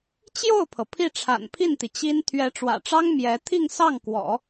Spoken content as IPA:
t͡ɕjo˥˩ʊ̯pʰɤ˩ pʰi˥˩ʈ͡ʂʰa̰˨˩npʰi˥˩nt̪i˩ t͡ɕi˥n t̪ʰɥɛ˧˥ʈ͡ʂwä̰˨˩ʈ͡ʂɑ˥ŋ mjɛ˧˥ t̪ʰi˥˧ŋsɑ˥˩ŋkwɔ̰˨˩˦

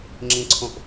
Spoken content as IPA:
ŋ͡ǁĩǀʰõʔ

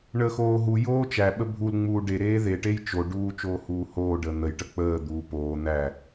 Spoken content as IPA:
ɳəːxoːɦujoː t͡ʃæɓə bʱulŋ͡muː ɖeɾeː ðeʈej t͡ʃoɖuː t͡ʃoːhuːhoːɖəː n̪əj ʈək͡pəːd̪uː poː n̪æ

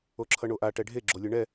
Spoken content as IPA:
oǁʰʌɳoʔa ʈɛɖʱe ɡ͡ǁolʲɯɳɛ

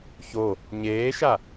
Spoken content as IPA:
ço | ɲeːʃa

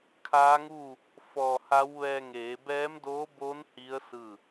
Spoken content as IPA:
kʰaː˧˥ŋuː˥˨ | fɔː˧˩ha˧˥w ʋɛː˧ ŋeː˩˧bɛː˧˥mdoː˧˥boː˧˥n hi˧˥ə̯ sɯː˥˨

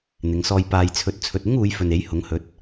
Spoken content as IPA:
n̪ɪ˨˧ŋsɔː˧j paː˨jt͡sʰɵ˨t̚ t͡sʰɵ˨t̚ɪ˥ŋuː˨˧j fɵ˨ne˨˥jhʊ˨˥ŋ hɵ˨˥t̚

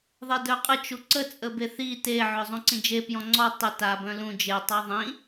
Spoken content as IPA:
ðˤedœqʼə t͡ʃuǀə t͡sʼəbeθi te ʕœzˤũǀĩd͡ʒe pjɔ̃ŋ͡ǀɔ tˤə ta bœ̃lũ d͡ʒe tˤaðˤĩ

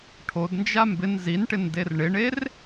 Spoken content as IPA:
ʈʰodnd͡ʒa mbɪn zinʈɪn derɳɪɳer

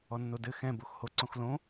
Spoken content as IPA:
ɔnːodɘ xɛ̃ boxhoǀõxlõ

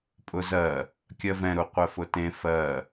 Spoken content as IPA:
pʼʊzɜ | kʲɜvɛ̃ ɾuqʷɛfʊtẽ fɜ

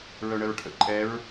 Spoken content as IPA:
ɹœɳəɹʈʰə̰ ǃʼɛɹ

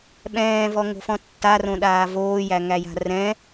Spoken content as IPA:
ɓɛ̃ːvɔŋo̤fɔ̃ tːarõɗaː voːjæŋæja̤ rɛ̃

